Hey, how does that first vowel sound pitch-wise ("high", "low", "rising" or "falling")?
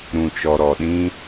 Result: low